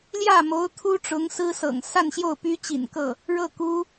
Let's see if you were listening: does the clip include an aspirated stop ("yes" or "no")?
yes